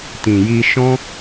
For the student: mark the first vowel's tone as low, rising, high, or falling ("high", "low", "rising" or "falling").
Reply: low